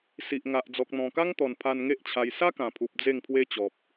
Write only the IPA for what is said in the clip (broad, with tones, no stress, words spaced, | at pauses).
si˨ʔŋa˨ʔ d͡zɔ˨k̚n̪ɔ̃˨˩ka˦ŋt̪ɔ˨˩n pʰa˧nŋe˦ʔt͡ɕʰa˧j sa˦kã˨˩pʰu˨p̚ d͡ze˥˧ŋpʰwe˦t͡ɕɔ˨p̚